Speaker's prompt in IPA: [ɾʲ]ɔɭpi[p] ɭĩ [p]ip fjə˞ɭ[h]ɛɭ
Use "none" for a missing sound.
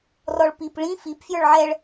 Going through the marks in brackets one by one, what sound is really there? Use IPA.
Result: r, p, f, ʕ

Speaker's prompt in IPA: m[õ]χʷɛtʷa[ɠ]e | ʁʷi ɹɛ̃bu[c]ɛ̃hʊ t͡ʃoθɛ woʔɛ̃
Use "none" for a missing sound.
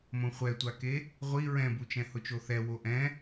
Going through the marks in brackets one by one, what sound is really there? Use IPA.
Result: õ, k, t͡ʃ

